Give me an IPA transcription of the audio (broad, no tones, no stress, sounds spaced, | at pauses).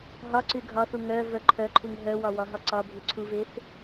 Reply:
ɦ ɒ ǀ y ɡʱ ɒ θ u ŋ œ v œ ǃʰ œ ǃʰ u ŋ ɦ œ w ɒ w ɒ ɦ ɒ ǀ ɒ bʱ y ǀʰ u v e θ